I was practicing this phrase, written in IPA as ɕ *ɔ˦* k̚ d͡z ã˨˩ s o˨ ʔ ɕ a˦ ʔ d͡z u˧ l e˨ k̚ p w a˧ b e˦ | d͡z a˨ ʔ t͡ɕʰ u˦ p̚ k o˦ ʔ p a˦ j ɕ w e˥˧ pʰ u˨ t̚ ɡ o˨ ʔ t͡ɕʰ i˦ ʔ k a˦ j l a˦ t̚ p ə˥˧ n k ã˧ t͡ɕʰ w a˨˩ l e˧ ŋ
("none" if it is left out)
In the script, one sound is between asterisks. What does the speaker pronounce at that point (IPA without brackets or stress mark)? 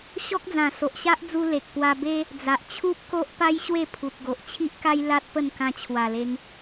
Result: ɔ˦